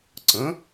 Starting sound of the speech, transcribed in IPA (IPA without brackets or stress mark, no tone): ǀ